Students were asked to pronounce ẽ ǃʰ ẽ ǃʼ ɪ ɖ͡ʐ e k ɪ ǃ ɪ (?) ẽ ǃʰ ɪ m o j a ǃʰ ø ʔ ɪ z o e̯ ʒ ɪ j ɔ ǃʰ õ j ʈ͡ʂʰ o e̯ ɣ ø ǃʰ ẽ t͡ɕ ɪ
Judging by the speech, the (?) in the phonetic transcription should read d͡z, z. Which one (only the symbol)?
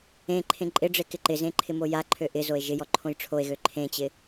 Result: z